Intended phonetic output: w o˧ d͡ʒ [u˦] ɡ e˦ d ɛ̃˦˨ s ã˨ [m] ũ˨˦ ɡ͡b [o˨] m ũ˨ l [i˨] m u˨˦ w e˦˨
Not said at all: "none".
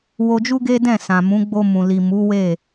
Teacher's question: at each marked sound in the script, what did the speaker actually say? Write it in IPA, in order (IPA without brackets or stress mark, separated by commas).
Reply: u˦, m, o˧, i˨